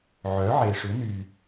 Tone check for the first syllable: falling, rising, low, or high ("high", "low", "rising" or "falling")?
rising